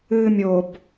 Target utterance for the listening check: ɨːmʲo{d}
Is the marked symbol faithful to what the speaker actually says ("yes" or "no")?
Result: no